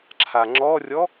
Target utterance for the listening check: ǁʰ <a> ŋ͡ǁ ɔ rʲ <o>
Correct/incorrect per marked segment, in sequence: correct, incorrect

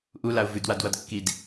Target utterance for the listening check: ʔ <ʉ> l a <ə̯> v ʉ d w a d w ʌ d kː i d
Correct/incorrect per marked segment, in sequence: incorrect, incorrect

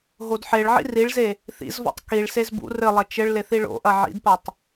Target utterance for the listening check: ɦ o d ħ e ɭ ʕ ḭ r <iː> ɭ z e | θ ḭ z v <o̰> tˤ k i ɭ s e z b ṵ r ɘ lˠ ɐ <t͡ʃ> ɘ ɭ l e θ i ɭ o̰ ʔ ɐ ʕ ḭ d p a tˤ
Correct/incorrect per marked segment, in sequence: incorrect, incorrect, correct

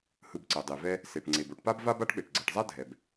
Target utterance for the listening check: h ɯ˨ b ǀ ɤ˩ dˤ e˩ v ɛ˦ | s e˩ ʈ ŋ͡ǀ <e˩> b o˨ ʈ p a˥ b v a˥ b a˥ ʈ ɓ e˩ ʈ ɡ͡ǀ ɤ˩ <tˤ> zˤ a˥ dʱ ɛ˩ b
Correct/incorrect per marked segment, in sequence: correct, incorrect

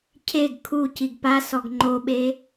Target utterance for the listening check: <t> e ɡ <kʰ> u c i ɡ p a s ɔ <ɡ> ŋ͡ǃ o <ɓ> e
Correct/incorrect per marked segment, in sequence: incorrect, correct, correct, correct

